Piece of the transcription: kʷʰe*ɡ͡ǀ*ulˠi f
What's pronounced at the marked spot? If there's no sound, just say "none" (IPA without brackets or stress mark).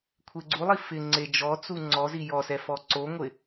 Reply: ɡ͡ǀ